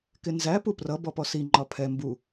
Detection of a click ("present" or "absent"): present